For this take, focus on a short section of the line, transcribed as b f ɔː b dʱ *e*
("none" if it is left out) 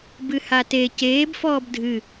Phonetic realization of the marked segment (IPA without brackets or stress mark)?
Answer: ɨ